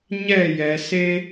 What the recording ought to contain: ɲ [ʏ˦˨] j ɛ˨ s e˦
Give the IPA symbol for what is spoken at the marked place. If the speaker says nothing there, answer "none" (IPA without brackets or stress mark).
ɛ˦˨